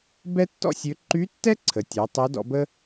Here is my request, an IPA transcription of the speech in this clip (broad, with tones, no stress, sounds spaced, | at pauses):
b ɛ˥ tː ɔ̰˥ sʲ ø˧˥ ǃ y˧˥ tː ɛ˥ ǀʰ ə˩˧ tʲ ɛ˩˧ tˤ o˧˥ d ɔ̰˧ b ə˥